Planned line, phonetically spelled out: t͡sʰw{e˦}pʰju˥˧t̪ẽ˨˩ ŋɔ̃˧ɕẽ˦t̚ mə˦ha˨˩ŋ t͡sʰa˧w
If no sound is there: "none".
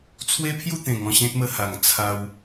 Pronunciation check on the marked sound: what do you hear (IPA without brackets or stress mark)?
e˦